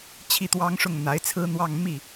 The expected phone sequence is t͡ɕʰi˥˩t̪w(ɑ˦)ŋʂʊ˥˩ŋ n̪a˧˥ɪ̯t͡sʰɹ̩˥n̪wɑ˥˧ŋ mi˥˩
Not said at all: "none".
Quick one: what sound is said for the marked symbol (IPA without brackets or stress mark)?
ɑ˥